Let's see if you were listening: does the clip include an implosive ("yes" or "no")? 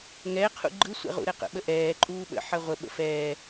yes